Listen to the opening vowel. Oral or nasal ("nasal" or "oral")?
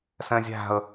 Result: nasal